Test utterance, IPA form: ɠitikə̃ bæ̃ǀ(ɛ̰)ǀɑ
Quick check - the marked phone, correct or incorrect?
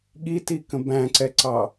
incorrect